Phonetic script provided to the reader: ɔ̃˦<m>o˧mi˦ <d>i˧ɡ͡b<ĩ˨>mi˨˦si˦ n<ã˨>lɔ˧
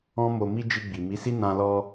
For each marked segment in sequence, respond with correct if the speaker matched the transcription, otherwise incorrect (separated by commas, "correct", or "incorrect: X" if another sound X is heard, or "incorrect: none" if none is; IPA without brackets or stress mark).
correct, incorrect: d͡ʒ, incorrect: i˨, incorrect: ã˧